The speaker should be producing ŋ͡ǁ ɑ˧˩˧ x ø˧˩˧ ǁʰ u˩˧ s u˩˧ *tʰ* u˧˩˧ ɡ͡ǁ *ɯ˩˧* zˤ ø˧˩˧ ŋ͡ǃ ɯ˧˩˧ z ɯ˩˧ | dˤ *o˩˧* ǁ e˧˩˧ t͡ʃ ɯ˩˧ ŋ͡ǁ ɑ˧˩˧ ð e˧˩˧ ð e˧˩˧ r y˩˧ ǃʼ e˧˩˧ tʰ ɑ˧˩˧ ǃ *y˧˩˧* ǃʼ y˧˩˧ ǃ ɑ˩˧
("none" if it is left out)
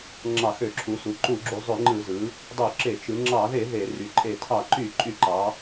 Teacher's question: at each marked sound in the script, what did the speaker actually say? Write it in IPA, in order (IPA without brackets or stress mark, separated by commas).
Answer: ǃ, u˩˧, o˧˩˧, y˧˩˧